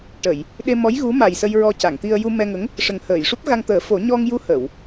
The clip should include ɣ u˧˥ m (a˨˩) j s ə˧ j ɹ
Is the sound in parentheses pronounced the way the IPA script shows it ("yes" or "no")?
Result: yes